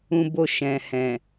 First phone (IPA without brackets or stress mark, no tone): ũ